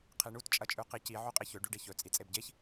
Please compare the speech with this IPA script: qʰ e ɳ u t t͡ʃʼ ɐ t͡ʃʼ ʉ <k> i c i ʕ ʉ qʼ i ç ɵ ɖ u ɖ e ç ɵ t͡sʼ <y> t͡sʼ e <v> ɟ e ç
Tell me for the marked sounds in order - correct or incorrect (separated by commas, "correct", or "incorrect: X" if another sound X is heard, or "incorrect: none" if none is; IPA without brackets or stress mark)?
incorrect: q, incorrect: i, incorrect: b